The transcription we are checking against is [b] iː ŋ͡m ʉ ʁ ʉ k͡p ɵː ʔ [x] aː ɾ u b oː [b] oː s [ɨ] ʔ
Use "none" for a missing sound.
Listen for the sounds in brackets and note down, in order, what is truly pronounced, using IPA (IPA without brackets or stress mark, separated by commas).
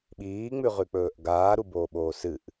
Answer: ɓ, ɡ, ɓ, ɨ